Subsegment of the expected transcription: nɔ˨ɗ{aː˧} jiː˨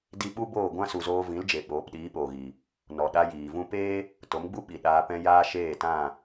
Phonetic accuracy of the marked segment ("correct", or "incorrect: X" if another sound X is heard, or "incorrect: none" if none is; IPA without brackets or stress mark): incorrect: a˧